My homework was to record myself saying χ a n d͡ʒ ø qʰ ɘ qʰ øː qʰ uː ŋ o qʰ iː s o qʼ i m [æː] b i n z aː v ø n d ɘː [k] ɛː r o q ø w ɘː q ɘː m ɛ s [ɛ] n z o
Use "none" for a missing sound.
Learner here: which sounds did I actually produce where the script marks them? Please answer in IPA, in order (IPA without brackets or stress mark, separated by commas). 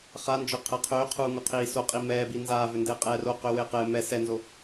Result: ɛː, qʼ, ɛ